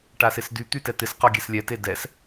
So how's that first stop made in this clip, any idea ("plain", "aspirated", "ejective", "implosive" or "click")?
plain